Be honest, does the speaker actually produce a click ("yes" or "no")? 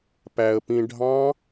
no